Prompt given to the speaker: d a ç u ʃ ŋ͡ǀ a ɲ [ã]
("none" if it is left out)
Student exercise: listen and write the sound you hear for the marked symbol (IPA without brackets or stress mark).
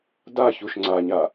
a